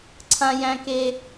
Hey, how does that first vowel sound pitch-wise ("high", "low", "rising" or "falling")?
high